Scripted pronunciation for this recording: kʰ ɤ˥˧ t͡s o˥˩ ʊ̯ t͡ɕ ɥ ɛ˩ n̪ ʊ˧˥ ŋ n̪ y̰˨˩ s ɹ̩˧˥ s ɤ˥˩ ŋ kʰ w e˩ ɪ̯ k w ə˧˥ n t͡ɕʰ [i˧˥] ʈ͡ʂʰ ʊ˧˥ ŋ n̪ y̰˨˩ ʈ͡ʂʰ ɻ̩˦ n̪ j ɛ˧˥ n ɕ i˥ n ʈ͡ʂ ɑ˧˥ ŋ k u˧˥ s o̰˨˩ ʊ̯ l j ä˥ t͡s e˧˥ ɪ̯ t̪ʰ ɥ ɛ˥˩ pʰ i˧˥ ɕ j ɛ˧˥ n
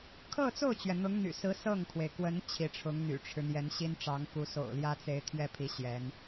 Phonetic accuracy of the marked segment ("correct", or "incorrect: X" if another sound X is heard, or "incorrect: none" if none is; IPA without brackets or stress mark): correct